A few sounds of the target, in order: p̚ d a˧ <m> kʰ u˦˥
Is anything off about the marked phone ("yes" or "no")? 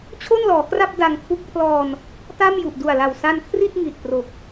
yes